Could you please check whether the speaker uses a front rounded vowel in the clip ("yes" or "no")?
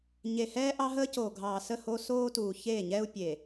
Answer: no